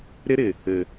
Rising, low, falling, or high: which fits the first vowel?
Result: high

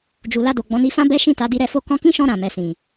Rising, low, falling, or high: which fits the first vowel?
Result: low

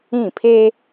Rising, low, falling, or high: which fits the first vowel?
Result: falling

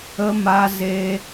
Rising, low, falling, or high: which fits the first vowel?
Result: high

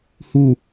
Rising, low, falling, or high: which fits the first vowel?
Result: falling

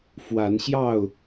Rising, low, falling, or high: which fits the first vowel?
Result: rising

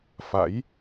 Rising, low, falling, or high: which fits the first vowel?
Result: rising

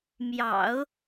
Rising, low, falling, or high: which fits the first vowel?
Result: low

